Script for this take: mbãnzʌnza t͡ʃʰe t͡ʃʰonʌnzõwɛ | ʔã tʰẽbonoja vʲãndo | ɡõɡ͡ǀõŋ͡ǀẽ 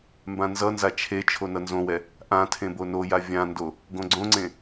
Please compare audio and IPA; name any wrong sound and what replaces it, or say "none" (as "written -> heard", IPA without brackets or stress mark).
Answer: none